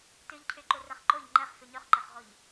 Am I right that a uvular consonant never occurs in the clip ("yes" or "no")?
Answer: no